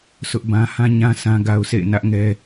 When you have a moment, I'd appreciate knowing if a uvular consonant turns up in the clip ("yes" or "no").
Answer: no